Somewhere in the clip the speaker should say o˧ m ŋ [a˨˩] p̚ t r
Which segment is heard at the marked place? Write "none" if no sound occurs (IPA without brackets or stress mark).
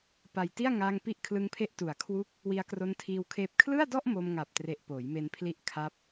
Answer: a˨˩